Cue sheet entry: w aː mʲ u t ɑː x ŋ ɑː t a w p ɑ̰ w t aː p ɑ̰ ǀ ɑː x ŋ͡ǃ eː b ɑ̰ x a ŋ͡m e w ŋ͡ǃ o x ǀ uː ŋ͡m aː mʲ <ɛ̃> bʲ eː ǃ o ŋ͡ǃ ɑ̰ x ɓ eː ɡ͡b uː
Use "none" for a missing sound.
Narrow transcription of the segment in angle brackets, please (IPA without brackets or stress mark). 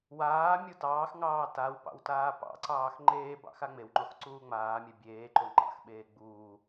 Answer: ɛ